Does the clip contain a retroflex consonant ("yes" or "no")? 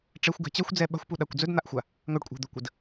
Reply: yes